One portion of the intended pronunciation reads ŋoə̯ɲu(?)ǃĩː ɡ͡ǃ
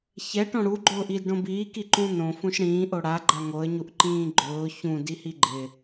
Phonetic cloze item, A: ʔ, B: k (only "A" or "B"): A